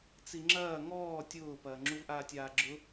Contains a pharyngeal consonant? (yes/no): no